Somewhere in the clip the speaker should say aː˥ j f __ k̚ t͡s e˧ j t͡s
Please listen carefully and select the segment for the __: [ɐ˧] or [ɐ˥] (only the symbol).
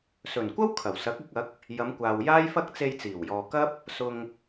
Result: ɐ˥